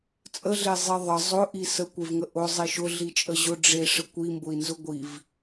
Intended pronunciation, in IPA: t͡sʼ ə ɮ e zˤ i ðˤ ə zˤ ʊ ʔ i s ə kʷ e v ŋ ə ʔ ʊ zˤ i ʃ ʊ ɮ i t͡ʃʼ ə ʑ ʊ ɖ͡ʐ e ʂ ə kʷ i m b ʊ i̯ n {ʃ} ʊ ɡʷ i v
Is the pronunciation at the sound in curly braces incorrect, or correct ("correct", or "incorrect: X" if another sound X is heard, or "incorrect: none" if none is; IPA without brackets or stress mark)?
incorrect: z